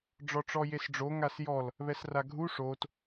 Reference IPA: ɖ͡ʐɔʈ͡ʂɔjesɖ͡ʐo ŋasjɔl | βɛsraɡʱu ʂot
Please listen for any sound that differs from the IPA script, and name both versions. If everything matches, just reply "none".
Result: none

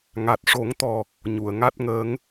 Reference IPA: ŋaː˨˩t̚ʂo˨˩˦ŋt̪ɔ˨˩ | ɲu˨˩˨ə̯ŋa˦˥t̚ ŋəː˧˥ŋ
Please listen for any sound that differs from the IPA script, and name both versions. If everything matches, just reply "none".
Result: aː˨˩ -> a˨˩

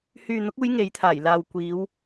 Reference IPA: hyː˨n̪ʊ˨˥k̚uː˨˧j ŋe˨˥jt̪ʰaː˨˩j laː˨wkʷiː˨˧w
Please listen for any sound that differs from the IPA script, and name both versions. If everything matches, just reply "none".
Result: none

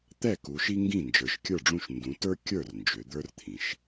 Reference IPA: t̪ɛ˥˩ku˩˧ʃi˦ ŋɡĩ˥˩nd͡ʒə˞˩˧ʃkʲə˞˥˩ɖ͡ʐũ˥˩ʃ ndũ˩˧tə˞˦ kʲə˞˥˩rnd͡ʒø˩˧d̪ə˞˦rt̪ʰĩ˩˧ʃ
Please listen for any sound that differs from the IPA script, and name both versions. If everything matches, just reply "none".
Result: none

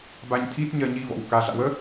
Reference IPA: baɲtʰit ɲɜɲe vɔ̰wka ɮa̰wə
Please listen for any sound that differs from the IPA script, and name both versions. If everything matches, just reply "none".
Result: e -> i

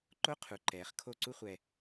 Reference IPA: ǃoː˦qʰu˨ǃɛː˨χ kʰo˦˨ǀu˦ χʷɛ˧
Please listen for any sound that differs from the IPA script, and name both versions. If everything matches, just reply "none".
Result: oː˦ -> o˦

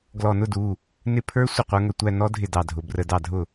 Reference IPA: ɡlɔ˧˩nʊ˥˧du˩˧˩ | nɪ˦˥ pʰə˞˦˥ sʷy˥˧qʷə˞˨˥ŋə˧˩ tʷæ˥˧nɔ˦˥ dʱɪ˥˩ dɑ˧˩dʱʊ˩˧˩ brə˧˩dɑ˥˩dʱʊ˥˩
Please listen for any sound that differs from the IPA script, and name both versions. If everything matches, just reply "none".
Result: y˥˧ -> ɪ˥˧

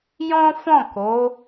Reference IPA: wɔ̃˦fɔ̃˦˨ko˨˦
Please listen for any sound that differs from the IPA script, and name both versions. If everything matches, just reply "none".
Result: w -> j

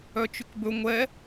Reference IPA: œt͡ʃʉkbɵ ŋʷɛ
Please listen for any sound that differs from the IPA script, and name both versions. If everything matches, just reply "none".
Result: none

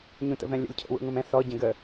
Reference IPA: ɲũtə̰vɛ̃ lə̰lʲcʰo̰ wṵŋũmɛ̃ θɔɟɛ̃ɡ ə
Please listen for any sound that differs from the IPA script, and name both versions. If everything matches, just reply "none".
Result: l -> lʲ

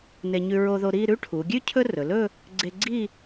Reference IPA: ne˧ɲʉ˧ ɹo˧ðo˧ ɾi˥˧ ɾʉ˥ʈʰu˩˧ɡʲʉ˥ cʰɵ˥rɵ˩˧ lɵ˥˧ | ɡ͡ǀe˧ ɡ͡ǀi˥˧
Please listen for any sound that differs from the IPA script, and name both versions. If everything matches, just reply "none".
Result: none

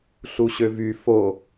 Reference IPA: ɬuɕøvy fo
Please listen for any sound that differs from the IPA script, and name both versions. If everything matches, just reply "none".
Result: none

